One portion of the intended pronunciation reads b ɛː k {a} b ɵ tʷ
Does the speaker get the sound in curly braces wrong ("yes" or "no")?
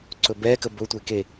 yes